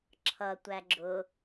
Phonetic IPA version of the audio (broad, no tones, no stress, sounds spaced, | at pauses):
ǁʰ ʌ tʷ æ ɡ͡ǁ ʊ